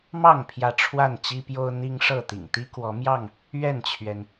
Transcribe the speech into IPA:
m ɑ˥˨ ŋ pʰ j ä˥˨ ʈ͡ʂʰ w a˥˨ n t͡ɕ i˦ p j o˦ ʊ̯ n̪ i˦ ŋ ʂ ɤ˥˨ t̪ ḭ˨˩ ŋ t̪ i˦ k w ɔ˨˦ m j ɑ˥˨ ŋ | ɥ ɛ˥˨ n t͡ɕʰ ɥ ɛ˩ n

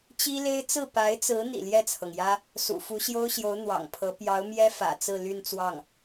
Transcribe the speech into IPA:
t͡ɕ i˥ l e˥ ɪ̯ t͡s ɹ̩˥˩ p a˧˥ ɪ̯ t͡s ɹ̩˧˥ n̪ ḭ˨˩ l j ɛ˥˩ t͡sʰ ɤ˩ ŋ j ä˥ | s ṵ˨˩ f u˧˥ ɕ j o˥ ʊ̯ ɕ j o˧˥ ʊ̯ n̪ w ɑ̰˨˩ ŋ pʰ ɤ˧˥ p j ɑ˧˥ ʊ̯ m j ɛ˥ f ä̰˨˩ t͡s ɹ̩˥˧ l y˥˧ n t͡s w ɑ˥˩ ŋ

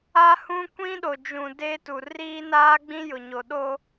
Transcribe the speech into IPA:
a˦ h ũ˦ kʷ ĩ˦ ɗ o˨ d͡ʒ ũ˨ d e˦ t u˨ r iː˦ n aː˦ ɡ͡b ĩ˦ j ʊ˨ ɲ o˨ ɗ o˦

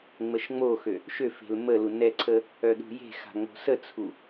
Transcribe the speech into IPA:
ŋ͡m ə ʃ ŋ͡m o x ø | ʃ ø f e̤ l m ə l u n ɛ ǀʰ ə | œ ɗ ṳ j e̤ x a̤ ŋ͡m o̤ s ə t͡sʰ u

